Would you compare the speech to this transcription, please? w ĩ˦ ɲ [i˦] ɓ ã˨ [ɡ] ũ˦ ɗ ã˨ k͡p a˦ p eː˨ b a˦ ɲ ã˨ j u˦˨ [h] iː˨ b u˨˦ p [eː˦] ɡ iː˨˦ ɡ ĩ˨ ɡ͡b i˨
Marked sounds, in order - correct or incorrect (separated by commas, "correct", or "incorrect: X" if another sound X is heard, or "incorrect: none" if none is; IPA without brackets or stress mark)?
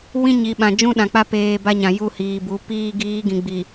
incorrect: i˨, incorrect: d͡ʒ, correct, incorrect: iː˦